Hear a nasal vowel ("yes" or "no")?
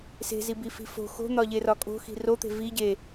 no